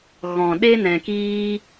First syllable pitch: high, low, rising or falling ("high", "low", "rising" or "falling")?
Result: low